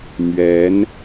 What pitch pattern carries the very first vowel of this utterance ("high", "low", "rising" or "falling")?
rising